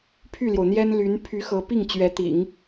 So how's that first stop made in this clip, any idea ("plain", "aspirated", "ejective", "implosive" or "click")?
aspirated